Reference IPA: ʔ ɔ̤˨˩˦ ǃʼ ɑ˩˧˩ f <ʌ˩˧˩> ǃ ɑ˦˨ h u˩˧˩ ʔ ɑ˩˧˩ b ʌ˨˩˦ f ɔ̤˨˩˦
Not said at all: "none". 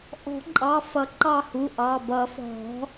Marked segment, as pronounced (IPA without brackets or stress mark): ʌ˨˩˦